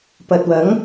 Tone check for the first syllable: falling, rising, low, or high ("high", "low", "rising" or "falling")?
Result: low